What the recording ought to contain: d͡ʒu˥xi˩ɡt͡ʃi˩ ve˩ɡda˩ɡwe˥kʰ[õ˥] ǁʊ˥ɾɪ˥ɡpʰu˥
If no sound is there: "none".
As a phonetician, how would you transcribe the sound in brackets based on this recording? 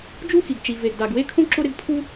õ˥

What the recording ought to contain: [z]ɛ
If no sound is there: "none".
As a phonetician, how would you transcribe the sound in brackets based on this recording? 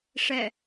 ʂ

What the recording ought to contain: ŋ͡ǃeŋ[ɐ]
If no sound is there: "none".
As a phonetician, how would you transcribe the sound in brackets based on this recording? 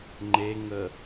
ə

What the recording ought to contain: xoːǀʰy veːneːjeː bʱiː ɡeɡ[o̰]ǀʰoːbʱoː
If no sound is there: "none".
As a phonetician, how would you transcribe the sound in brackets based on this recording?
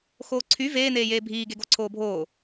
o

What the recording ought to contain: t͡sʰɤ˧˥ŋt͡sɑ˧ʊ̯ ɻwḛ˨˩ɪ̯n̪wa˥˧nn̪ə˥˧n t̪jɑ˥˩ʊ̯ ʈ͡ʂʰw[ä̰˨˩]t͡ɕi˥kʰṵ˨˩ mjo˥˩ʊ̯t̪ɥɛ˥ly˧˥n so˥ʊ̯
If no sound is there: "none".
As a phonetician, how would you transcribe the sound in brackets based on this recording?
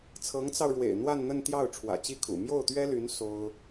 ä̰˨˩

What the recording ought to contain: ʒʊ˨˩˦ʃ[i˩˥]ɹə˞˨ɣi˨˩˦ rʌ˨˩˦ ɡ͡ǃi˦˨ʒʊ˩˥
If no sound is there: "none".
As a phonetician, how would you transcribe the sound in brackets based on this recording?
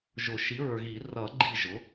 i˩˥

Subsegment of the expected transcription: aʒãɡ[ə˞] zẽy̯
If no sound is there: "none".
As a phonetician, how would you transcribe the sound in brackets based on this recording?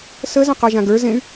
ə˞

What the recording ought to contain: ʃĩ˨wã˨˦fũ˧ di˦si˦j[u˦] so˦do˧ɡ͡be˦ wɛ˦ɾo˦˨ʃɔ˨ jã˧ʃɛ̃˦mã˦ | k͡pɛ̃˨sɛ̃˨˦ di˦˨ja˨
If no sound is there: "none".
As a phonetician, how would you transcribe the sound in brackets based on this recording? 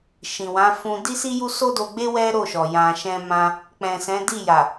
u˦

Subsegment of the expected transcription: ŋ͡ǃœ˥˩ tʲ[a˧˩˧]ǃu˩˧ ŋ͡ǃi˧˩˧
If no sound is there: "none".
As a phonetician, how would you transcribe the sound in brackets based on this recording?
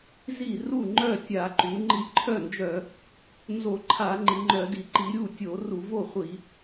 a˧˩˧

